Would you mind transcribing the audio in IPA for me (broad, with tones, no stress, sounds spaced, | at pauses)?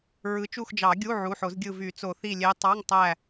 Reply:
ɹ ɯ˩˥ t͡ʃ u˦˨ x d͡ʒ ɑ˨˩˦ ɡʲ u˧˥˧ ʕ u˩˧˩ ħ o˨˩˦ z ɡʲ ɯ˦˨ v y˨˩˦ t͡s o˨˩˦ θ i˦˨ lʲ e˧˥ tˤ ɑ˧˥˧ ŋ tˤ æ˦˨